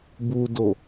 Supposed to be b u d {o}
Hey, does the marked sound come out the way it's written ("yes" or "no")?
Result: yes